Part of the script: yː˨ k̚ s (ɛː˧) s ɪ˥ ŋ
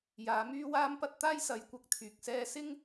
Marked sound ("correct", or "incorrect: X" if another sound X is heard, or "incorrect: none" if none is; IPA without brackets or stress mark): incorrect: ɛː˥